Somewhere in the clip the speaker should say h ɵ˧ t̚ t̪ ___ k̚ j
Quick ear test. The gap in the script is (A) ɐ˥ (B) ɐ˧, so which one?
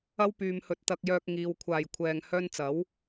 B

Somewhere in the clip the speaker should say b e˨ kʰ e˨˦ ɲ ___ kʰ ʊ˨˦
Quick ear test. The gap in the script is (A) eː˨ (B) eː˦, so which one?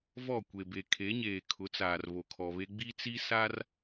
A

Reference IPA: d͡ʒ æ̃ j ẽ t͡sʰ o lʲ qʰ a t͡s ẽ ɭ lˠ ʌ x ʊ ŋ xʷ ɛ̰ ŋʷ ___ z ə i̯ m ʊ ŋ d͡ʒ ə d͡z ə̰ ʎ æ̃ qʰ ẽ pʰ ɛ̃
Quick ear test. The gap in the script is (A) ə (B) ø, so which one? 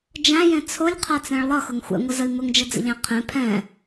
A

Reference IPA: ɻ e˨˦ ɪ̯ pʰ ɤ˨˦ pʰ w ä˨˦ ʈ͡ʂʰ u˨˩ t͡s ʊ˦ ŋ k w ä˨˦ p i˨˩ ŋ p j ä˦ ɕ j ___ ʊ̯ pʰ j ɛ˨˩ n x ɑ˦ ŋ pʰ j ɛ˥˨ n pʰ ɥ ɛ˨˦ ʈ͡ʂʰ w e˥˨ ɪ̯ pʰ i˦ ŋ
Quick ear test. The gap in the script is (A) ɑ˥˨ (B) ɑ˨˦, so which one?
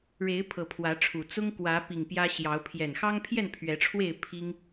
B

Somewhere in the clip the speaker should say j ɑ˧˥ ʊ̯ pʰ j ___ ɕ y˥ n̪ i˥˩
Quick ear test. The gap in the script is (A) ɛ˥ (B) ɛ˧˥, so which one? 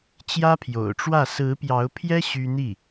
A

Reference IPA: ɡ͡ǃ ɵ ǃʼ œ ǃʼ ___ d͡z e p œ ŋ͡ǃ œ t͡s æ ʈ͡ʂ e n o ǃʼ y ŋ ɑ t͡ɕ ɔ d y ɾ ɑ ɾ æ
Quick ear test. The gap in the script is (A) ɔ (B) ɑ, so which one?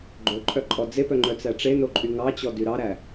A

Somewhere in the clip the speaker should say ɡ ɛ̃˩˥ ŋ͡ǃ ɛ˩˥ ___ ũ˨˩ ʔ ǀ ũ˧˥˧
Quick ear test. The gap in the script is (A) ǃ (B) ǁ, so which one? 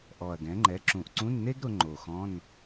B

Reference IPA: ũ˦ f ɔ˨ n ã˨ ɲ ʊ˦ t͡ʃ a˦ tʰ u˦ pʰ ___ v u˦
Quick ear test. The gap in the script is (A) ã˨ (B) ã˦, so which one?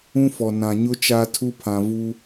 A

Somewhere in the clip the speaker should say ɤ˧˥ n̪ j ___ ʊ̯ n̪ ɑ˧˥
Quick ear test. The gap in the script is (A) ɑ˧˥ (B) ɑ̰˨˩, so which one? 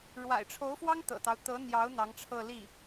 A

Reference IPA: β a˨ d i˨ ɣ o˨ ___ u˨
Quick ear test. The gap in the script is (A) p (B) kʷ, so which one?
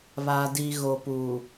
A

